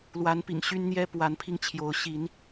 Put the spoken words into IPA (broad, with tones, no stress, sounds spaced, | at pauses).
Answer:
l w a˨˦ n p ḭ˨˩ ŋ ɕ y˦ n n̪ j ɛ˦ p w a˨˦ n pʰ i˧ ŋ t͡ɕʰ j o˨˦ ʊ̯ ɕ i˨˦ n